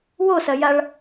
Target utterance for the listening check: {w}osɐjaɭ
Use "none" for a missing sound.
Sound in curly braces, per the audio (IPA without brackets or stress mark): w